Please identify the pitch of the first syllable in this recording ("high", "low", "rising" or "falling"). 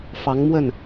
rising